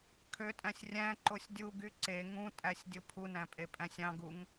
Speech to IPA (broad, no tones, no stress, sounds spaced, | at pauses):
kʰ ø tʼ æ̃ sʲ rʲ æ̃ ǃ o sʲ dʲ u ɡ y ǀ e ŋ ũ tʼ æ sʲ dʲ o pʰ u n æ̃ pʼ e pʼ æ̃ sʲ ɑ̃ ɡ u ŋ